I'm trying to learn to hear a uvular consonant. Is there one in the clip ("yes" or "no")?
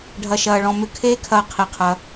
yes